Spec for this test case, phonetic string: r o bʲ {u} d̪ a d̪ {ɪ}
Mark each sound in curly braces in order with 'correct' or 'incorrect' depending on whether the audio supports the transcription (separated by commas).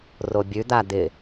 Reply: incorrect, correct